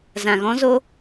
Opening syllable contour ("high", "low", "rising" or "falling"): low